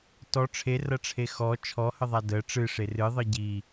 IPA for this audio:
t ɔ ʈ͡ʂʰ e r ɐ ʈ͡ʂʰ e x ɔ t͡ʃʰ ɔ h ə ðˤ a d ə ʈ͡ʂ ɨ ʂ e r ɨ ðˤ ɨ ɟ i

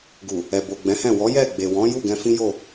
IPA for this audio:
ɡ u˨ | ɛ˨ b o˨ ɡ͡b ɛ̃˨˦ h ɛ̃˦˨ w ɔ˨˦ j ɛ˦˨ ɡ͡b e˨ w ɔ̃˨˦ j u˦˨ ɡ ɛ̃˧ f ĩ˦ j o˦˨

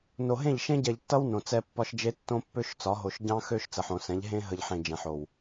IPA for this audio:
n o˨ ɦ ẽ˦˨ ʎ ʃ ẽ˦ ɟ ɛ˨ ʎ tː ʌ˦ w n õ˨ t͡s ɛ˦ pː ɒ˦ ʃ d͡ʒ e˦ tː õ˦ pː ø˦ ʃ t͡s ɒ˨˦ ɦ o˨ ʃ ɟ ɑ̃˦ x ø˦ ʃ t͡s ə˨ ħ õ˨ s ɛ̃˨˦ ʎ ɦ ẽ˦ ɦ ə˨ ʎ ħ ẽ˨ d͡ʒ ɛ̃˨ ħ o˨ w

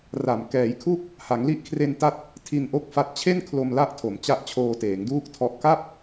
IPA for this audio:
r a˨˩ m k ɛː˩˦ j kʰ u˦˥ k̚ | h a˩˦ ŋ l i˦˥ ʔ kʰ r e˧ n t a˦˥ t̚ | tʰ i˧ n ʔ o˥˩ k̚ f a˦˥ t̚ t͡ɕʰ e˥˩ n kʰ l o˧ m l a˦˥ ʔ tʰ o˩˦ m t͡ɕ a˦˥ ʔ t͡ɕʰ oː˧ t eː˩˦ ŋ d uː˥˩ k̚ tʰ ɔ˦˥ ʔ k a˥˩ p̚

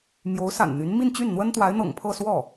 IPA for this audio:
m j o˧˥ ʊ̯ s a̰˨˩ n n̪ y˧˥ n m i˥˧ n t͡ɕ y˥˩ n n̪ w ə˥ n t̪ w a˧˥ ɪ̯ n̪ ɤ̰˨˩ ŋ pʰ ɤ˥˧ s w ɔ˥˩

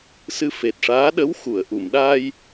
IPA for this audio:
s ɨ˧ f e˨˩ t̚ ʂ aː˧˥ ɗ ə˧˥ w x u˨˩˨ ə̯ ʔ u˨˩˨ m ɗ aː˧ j

